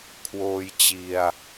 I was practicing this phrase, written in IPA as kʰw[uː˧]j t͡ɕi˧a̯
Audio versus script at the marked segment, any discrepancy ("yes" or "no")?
yes